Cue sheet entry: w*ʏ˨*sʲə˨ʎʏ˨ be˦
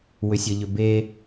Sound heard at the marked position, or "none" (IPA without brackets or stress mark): ʏ˨